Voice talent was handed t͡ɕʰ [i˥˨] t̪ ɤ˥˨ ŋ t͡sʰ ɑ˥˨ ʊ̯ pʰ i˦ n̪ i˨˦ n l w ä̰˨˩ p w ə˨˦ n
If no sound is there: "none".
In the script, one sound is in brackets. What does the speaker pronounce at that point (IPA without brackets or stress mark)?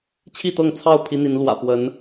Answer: i˥˨